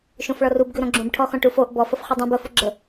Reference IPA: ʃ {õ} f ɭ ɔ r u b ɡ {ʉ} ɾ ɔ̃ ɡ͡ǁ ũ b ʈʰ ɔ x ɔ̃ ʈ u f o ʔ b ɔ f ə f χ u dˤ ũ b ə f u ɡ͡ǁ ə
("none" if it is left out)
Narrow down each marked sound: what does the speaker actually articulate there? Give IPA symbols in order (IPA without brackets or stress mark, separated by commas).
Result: õ, ʉ